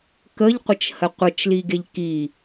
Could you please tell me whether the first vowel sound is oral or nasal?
oral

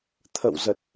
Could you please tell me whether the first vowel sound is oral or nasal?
oral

